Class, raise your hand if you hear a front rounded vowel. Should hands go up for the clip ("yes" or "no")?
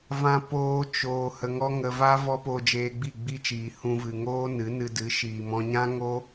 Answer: no